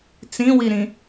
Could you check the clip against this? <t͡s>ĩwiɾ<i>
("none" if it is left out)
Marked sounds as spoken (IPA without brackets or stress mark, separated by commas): t͡s, ĩ